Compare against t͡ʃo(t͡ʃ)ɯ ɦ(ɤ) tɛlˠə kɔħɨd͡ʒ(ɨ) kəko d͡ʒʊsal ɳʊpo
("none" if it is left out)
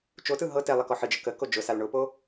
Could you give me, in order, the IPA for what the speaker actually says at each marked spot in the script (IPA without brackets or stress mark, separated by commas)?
t, ɤ, ə